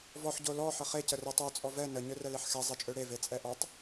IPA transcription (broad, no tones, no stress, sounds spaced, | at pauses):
v ɔ ħ ɟ o l ɔ ħ ə χ e c ə r ə tˤ o t͡sʼ ɔ v ɛ n ə ɲ ø r ɛ l e ħ x ɛ zˤ e t͡ʃʼ ø ɽ e v e t͡sʼ ɛ ʔ ɔ tˤ